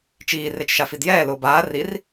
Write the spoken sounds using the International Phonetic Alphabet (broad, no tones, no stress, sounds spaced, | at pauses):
t͡ʃ iː r e t͡ʃ ʃ a f i d j ɛː l ʊː b aː r i r